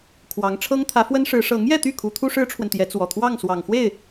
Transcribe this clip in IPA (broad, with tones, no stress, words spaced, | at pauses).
kʰwɑ˧˥ŋ ʈ͡ʂʰɤ˥ŋt̪ʰä˧˥fwə˥nʂɻ̩˧˥ ʂɤ˧˥ŋjɛ˥˧t̪y˥˩ kʰu˧˥t̪ʰu˥ ʂɻ̩˥ʈ͡ʂʰwə˨nt̪jɛ˧˥ t͡swɔ˨˩ t̪ʰwɑ˥˩ŋswɑ˨˩ŋxwe˥˩ɪ̯